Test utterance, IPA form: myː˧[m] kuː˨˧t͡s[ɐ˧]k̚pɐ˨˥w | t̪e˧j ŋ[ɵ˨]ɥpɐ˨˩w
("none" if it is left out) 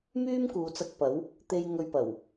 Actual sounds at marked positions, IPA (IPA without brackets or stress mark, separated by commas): m, ɐ˧, ɵ˧